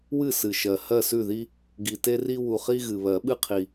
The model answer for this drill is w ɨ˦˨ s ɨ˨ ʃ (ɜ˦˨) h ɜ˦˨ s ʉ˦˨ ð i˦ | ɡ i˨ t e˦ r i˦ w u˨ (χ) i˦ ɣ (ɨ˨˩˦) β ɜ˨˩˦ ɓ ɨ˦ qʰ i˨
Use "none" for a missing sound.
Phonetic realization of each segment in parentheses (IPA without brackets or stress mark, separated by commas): ɜ˨, χ, ɨ˨